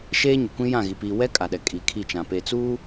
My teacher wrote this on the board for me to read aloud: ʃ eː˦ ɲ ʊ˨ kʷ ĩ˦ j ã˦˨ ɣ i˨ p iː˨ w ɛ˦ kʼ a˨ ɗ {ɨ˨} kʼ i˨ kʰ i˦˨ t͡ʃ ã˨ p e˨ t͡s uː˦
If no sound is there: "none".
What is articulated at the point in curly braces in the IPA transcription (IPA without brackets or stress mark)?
ɛ˨